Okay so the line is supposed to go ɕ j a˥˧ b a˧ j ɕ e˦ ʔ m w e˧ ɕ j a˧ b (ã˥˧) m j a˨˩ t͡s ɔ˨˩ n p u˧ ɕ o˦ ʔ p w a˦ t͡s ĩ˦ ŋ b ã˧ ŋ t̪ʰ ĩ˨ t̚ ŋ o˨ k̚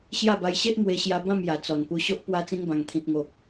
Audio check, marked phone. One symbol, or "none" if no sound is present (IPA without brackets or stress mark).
ã˥˧